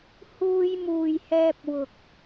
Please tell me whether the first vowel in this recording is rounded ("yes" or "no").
yes